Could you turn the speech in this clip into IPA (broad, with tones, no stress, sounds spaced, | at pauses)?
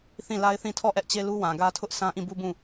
θ ĩ˦˨ l a˦ ɪ̯ θ ĩ˦˨ tʰ ɔ˦˨ ʔ ɛ˦ ʔ t͡ɕ e˦ l u˦ w ã˨ ɡ ä˦ tʰ ʊ˦ ʔ sʰ ã˦ ʔ ĩ˦˨ b u˦ b ũ˦˨